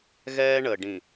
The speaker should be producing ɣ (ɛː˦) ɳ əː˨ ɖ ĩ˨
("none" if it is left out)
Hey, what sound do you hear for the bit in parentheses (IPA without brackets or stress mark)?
ɛː˦